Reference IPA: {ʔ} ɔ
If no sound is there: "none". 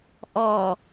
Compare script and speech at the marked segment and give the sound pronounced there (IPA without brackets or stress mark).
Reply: ʔ